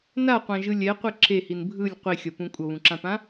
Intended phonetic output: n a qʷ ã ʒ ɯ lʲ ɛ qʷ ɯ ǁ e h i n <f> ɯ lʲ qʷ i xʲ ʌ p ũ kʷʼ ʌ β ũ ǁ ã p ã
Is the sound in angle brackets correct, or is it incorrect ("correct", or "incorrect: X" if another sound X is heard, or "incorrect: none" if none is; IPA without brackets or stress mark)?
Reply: incorrect: bʱ